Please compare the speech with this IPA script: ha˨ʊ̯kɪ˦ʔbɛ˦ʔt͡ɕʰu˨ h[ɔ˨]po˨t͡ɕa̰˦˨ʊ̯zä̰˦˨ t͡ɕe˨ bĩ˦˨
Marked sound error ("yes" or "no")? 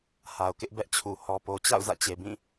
no